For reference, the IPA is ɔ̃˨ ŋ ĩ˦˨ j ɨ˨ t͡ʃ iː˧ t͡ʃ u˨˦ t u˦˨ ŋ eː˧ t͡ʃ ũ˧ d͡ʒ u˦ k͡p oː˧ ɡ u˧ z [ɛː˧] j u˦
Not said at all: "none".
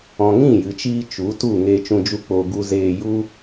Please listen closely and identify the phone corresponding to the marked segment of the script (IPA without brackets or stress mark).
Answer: eː˧